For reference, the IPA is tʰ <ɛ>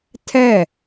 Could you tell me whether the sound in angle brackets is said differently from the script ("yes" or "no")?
no